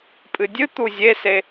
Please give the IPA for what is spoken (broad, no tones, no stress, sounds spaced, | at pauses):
pʼ ɨ dʲ ɨ t̪ u zʲ e s e